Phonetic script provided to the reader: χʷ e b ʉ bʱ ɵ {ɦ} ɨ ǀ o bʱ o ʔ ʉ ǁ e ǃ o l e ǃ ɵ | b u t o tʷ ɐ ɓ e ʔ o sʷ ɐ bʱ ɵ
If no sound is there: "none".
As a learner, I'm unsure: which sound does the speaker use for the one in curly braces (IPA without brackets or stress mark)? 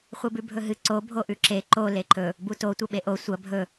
ɦ